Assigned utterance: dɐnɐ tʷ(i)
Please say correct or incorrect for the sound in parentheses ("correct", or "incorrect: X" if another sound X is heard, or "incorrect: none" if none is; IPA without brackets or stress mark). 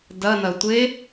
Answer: incorrect: e